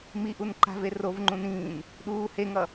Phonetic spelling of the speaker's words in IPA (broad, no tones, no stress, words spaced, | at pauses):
miʔun ǃa̤ve rovŋ͡ǃũn ĩːn | ɗuː heŋʌ